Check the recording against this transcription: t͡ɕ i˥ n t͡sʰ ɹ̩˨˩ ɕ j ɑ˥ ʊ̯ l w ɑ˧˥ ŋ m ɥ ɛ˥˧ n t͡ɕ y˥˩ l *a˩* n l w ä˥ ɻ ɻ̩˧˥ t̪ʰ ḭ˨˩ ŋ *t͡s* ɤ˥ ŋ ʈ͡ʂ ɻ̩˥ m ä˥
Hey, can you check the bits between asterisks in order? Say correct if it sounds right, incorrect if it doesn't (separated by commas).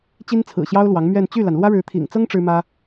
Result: correct, correct